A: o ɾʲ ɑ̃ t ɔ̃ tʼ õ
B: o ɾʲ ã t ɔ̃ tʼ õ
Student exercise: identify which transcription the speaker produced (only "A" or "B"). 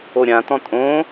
B